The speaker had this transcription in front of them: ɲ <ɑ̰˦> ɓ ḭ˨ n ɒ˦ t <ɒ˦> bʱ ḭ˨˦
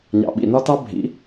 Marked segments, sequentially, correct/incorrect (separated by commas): incorrect, incorrect